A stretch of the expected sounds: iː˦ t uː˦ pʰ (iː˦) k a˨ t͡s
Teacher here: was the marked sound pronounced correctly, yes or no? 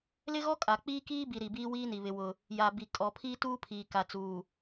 no